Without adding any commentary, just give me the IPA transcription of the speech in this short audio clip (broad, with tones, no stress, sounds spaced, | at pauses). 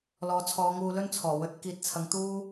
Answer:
l ɔː˨˧ t͡sʰ ɔː˨˧ ŋ uː˧ l ɵ˥ n t͡sʰ ɔː˨˩ w ɵ˨˥ t̚ k iː˨˥ t̚ t͡sʰ ɐ˨˧ ŋ t̪ uː˥